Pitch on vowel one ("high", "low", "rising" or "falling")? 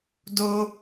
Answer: high